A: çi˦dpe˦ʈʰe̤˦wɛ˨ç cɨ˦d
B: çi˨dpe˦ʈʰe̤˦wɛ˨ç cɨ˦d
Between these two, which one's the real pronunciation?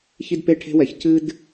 A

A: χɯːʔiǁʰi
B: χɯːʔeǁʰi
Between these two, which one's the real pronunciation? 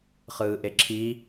B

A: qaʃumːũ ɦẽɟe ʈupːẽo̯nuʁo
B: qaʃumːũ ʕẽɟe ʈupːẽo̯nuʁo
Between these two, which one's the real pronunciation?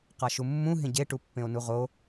A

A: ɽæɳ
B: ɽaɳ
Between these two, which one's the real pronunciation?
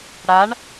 B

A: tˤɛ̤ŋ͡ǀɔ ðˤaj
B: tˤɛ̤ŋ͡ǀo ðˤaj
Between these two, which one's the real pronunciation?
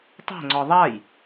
A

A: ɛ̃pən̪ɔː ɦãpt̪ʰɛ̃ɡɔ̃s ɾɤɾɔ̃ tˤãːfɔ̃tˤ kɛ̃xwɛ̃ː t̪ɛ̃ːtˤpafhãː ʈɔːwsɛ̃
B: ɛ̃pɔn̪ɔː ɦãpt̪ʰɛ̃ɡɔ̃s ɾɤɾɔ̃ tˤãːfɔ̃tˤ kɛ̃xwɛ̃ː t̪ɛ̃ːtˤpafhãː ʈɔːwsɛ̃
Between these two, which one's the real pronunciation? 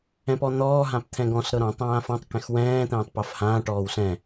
B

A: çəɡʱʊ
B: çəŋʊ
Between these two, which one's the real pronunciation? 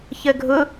A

